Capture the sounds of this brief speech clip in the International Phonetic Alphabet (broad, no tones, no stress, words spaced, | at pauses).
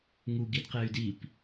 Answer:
ŋu ɡidqey̯dip